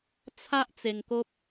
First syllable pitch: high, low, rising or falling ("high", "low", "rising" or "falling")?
high